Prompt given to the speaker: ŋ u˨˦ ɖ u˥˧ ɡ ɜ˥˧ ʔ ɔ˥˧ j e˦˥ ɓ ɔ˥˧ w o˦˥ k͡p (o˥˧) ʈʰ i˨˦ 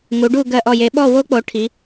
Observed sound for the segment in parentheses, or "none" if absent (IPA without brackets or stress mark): o˨˦